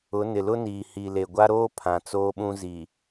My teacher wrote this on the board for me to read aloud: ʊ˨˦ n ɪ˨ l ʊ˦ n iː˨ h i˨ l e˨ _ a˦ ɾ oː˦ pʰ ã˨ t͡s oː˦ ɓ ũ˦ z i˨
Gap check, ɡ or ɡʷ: ɡʷ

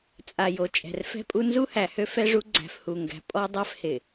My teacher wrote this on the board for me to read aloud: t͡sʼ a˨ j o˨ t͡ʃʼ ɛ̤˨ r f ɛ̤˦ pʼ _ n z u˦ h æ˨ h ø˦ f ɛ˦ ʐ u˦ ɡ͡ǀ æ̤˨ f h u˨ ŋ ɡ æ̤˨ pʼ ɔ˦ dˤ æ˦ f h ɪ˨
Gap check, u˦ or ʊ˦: u˦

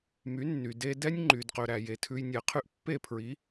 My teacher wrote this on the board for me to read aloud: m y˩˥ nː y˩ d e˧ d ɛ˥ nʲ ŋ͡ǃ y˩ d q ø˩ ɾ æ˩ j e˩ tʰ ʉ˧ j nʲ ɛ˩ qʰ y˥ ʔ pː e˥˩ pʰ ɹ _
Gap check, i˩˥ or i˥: i˩˥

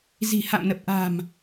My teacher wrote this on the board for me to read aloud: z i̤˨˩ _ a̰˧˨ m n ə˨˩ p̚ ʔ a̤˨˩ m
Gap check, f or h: h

